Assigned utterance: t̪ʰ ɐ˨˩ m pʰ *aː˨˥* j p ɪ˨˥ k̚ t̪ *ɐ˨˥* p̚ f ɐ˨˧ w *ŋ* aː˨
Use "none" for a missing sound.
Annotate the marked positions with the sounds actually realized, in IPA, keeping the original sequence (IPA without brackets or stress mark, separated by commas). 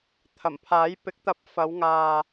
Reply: aː˨˥, ɐ˨˥, ŋ